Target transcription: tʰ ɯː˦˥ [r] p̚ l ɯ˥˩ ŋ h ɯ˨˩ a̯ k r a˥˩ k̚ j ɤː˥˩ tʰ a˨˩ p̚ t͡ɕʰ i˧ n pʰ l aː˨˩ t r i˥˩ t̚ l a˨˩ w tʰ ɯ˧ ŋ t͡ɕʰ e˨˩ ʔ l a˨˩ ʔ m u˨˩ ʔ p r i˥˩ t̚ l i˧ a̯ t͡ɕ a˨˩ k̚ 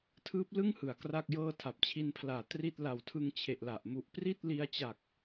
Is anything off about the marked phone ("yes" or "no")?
yes